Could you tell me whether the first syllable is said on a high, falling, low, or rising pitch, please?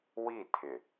falling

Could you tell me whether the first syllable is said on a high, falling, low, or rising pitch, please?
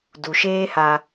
low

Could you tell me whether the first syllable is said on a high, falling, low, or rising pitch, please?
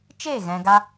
falling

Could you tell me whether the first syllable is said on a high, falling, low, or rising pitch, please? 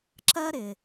high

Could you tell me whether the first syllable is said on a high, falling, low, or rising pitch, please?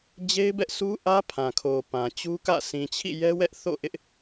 high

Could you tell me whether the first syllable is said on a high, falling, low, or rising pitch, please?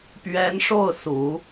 rising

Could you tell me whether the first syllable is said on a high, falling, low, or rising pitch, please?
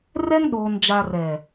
high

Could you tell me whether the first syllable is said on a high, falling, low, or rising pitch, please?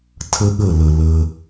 high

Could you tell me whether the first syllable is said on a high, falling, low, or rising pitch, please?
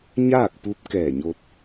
falling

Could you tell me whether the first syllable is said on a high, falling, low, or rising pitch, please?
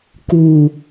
low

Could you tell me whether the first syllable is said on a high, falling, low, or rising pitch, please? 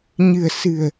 low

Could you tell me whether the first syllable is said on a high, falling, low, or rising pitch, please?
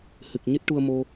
low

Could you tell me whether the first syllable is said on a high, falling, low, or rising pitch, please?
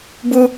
high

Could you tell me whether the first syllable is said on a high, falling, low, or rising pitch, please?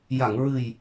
low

